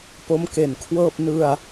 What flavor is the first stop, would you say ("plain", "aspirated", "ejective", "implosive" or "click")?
plain